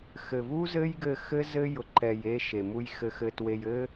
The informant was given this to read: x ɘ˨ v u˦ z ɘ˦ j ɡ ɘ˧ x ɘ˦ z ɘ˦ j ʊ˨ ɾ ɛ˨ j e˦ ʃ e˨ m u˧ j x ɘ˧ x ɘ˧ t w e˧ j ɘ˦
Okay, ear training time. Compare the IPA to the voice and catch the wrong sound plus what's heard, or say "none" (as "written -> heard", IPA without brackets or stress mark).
ɾ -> ǃ